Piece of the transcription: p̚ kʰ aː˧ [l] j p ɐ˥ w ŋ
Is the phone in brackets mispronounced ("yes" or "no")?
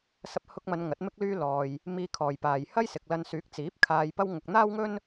yes